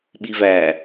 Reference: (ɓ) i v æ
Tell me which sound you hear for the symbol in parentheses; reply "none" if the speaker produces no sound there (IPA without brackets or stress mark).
ɓ